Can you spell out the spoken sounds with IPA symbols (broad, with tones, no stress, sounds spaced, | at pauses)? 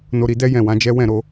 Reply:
n o˧ ɾ i˧ d ɛ˦ j ɛ̃˦˨ w ã˨˦ d͡ʒ ɛ˦ w ɛ̃˦˨ ɾ o˧